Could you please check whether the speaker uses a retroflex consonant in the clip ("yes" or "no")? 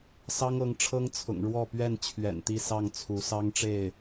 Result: yes